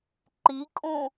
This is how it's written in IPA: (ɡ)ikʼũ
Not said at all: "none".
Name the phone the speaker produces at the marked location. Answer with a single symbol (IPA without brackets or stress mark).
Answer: ǃ